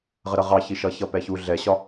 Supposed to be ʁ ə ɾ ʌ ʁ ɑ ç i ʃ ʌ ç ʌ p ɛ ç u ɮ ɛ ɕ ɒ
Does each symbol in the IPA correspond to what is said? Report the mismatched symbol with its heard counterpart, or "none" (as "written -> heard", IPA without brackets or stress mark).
none